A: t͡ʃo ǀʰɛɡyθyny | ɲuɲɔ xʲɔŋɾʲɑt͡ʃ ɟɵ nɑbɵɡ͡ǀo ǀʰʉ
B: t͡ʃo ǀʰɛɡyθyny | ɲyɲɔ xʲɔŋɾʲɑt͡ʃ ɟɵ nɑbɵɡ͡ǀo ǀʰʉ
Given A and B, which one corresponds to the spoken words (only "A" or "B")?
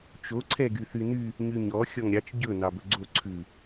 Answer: B